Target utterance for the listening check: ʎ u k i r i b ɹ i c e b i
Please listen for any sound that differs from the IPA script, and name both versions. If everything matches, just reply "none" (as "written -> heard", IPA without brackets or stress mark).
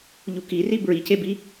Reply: none